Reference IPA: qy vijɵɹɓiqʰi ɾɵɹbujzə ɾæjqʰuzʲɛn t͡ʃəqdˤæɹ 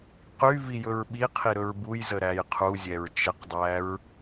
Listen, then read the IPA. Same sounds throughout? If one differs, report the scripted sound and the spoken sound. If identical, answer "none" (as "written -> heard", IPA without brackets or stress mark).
n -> ɹ